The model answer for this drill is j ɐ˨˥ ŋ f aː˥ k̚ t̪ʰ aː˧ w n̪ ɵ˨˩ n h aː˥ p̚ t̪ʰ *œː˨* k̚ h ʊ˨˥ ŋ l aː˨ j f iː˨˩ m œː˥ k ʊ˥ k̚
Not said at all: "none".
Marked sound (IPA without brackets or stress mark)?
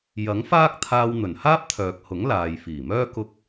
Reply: œː˨